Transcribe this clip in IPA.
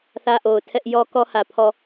θ ä˦ ʔ o˨ ʊ̯ tʰ ɛ˦ ʔ j ɔ˦ k ɔ˦ h ä˨ pʰ ɔ˨

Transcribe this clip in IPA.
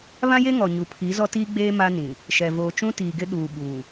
β ã˦ j e˦ ŋ ɔ˨ ɲ u˨ pʰ i˨˦ z ɔ˦ t iː˦ ɡ͡b eː˦ m a˦ n ĩ˨ | ʃ ɛ˨ v oː˨ t͡ʃ ũ˦ t iː˨ ɡ ɪ˦ ɗ uː˨ ɓ uː˨

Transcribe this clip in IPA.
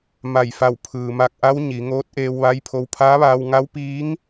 m a˧˩ j f a˧˩ w pʰ ɯː˩ m a˧˩ k̚ ʔ a˧˥ w ɲ i˩˧ ŋ oː˧˥ t̚ ʔ eː˧ w ʋ a˧˥ j pʰ o˧ w pʰ aː˧˥ ʋ aː˧ w ŋ a˧˥ w p iː˧˥ ŋ

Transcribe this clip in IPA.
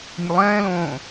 nʲ ə lˠ ɛ̃ː l õː

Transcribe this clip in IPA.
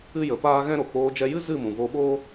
ɨ˦ j ə˨˦ p aː˦ ɣ ɛ̃˦ ɾ o˨ k͡p oː˧ d͡ʒ ɛ˧ j ɨ˦ z ɨ˦˨ m ũ˨ v o˧ ɓ oː˦

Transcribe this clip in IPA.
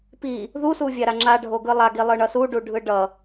p i | ð u s u vʲ a ɾ a ŋ͡ǁ a ɖʱ o ɡ ɯ lˠ a ɡ i lˠ ɯ ɳ ʌ s u ɖ u ɖʱ ɯ ɖ ʌ

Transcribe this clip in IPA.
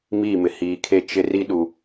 m iː˦˨ m ɪ˨ h iː˨ kʰ e˦˨ t͡ʃ ɪ˦ r i˦ ɗ u˨

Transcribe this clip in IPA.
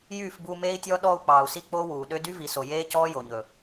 j yː˦˨ f b uː˧ m eː˦ i̯ tʲ ɔː˦ ɗ ɔː˧ u̯ k͡p ɑː˨ u̯ s i˧ k͡p o˦ w uː˨ ɗ ø˧ d y˦ v i˨ s o˨ j eː˦ c ɔː˦ j o˨ ɲ ɵ˨

